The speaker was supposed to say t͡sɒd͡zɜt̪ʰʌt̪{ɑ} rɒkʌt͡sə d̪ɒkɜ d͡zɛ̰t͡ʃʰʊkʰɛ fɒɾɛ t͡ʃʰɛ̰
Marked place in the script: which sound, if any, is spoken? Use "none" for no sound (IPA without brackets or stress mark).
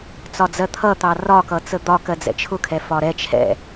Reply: ɑ